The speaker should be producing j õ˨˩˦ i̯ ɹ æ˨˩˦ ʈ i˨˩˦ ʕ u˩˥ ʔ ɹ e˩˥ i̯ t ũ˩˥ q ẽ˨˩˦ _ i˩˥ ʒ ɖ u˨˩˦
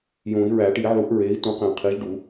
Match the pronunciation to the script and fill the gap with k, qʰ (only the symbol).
qʰ